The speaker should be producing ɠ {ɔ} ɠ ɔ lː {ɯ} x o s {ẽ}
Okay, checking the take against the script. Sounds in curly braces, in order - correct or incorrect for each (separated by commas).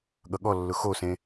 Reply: incorrect, incorrect, correct